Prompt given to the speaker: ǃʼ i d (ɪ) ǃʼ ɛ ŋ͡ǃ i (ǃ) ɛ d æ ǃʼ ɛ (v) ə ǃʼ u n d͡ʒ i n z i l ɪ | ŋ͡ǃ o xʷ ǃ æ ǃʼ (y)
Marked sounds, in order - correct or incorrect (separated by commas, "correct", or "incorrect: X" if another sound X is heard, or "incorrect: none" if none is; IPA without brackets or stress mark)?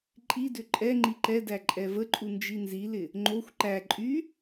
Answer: incorrect: ʏ, correct, correct, correct